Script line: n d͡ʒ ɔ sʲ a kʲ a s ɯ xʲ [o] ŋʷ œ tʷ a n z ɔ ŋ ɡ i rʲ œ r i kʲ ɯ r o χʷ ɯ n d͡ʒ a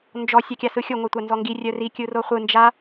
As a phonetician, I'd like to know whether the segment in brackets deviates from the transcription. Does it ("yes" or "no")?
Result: no